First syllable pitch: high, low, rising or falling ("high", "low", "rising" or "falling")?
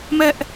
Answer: high